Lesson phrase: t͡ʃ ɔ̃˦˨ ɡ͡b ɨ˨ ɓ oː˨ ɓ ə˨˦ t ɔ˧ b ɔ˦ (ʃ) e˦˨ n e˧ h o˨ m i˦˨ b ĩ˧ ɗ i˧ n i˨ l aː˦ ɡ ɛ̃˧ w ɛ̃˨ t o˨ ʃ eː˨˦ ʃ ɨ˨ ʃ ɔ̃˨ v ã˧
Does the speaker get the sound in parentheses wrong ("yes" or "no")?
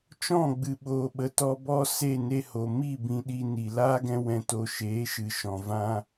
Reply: yes